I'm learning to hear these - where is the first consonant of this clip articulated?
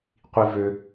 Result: uvula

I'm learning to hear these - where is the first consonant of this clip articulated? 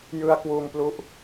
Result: palate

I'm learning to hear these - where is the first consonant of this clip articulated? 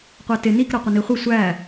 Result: uvula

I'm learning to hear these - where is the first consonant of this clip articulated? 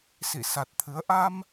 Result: tongue tip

